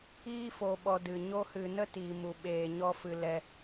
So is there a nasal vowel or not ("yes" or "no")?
no